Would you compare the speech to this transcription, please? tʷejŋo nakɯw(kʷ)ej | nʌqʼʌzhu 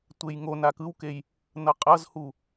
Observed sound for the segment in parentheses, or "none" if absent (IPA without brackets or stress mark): k